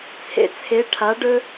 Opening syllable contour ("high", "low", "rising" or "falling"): low